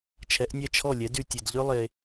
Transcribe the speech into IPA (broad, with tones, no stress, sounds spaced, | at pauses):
t͡ʃʰ ɛ˨˦ ʔ nʲ ɛ˦˨ t͡ʃʰ ɔ˦˨ lʲ ɛ˨˦ d y˨ tʲ e˨ d ʎ ø˦ lˠ e˧